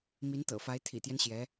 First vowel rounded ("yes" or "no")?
no